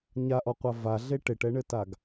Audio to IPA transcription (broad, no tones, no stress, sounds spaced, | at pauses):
ɲ a ʔ ɔ qʷ a v a ɮ e ʈ e ʈ ɛ ɳ ɘ t a ɡ